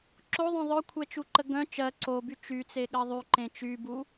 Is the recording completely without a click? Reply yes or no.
no